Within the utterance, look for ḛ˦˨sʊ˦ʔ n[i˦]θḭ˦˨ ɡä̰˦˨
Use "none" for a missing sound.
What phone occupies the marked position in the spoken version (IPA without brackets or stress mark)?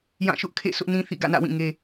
ĩ˦